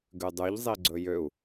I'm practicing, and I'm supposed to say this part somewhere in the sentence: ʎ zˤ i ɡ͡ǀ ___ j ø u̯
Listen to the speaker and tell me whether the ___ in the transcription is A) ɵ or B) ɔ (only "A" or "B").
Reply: A